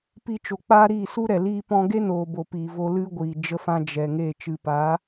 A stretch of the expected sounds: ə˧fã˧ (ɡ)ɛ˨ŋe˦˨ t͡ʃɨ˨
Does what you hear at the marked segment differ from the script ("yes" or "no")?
yes